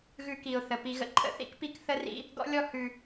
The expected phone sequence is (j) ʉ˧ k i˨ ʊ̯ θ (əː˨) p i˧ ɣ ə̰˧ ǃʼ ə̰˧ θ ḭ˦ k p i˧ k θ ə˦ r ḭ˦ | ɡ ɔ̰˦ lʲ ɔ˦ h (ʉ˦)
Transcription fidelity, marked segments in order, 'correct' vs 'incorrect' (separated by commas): incorrect, incorrect, incorrect